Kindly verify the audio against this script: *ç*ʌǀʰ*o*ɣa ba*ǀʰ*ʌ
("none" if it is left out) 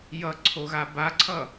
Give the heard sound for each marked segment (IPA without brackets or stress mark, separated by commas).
j, o, ǀʰ